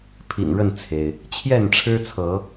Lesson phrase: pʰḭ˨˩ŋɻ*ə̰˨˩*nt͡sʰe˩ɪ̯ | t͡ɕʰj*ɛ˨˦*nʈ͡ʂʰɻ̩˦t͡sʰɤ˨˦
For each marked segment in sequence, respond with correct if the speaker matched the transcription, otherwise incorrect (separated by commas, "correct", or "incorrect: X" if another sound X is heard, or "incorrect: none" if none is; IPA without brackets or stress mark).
incorrect: ə˥˨, incorrect: ɛ˥˨